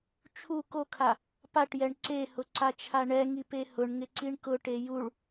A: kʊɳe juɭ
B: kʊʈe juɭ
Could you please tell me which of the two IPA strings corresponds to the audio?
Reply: B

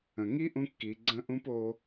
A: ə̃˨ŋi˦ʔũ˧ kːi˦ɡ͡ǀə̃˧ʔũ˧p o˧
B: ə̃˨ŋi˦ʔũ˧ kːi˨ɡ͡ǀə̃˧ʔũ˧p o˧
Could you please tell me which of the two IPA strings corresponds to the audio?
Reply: B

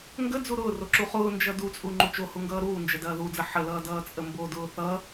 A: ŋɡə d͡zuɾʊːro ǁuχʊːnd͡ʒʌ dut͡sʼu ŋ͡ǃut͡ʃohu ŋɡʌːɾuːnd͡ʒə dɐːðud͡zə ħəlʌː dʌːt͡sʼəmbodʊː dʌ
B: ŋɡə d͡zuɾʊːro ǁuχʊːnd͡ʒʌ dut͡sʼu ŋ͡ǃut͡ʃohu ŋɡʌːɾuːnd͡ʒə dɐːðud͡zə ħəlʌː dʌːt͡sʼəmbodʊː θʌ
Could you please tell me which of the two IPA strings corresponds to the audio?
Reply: B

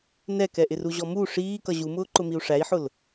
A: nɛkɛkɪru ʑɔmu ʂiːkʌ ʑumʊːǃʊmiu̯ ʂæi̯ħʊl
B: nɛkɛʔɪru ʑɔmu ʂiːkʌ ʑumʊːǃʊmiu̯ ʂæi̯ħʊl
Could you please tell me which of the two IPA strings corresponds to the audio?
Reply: B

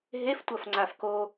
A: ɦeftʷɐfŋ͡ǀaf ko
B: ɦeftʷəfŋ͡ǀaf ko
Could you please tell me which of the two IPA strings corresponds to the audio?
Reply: A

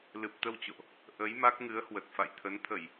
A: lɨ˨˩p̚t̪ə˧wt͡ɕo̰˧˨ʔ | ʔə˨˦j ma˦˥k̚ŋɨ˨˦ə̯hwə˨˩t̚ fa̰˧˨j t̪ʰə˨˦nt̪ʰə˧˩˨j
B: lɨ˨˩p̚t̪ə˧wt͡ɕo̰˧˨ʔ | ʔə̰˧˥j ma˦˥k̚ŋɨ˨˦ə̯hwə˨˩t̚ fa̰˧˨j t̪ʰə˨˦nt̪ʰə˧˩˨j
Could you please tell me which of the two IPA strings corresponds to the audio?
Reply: A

